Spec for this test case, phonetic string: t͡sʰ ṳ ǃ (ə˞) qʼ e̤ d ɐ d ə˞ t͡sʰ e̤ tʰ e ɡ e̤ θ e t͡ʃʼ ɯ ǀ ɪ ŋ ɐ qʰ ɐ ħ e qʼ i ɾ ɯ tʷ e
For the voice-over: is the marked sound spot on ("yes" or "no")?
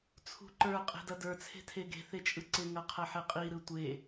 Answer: yes